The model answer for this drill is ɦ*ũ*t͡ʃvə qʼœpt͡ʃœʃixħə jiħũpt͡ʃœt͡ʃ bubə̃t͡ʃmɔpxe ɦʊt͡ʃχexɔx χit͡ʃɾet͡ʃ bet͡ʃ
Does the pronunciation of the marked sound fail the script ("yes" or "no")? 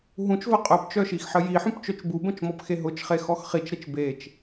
no